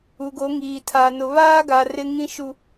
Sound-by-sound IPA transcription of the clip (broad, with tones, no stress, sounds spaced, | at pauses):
u˨ ɡ o˨˦ ŋ iː˨ tʰ a˨ n ʊ˨ β aː˦ ɡ a˨ r ɪ˦ ŋ ĩ˦ ʃ u˨